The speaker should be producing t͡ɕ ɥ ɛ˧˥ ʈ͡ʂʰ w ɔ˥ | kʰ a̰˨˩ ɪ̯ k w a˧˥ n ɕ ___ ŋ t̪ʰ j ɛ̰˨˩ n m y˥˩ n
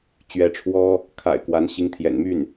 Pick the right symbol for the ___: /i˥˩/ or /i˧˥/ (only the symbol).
i˧˥